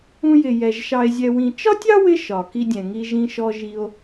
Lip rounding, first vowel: rounded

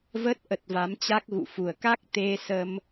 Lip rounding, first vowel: unrounded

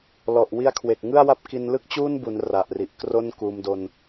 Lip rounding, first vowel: rounded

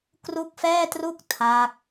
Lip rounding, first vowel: rounded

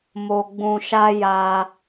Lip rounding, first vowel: rounded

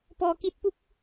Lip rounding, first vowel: rounded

